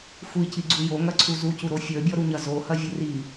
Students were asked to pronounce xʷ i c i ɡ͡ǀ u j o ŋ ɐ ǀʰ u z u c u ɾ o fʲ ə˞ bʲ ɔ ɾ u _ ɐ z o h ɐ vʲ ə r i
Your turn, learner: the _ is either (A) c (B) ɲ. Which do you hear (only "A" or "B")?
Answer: B